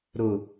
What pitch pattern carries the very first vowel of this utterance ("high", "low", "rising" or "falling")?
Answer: low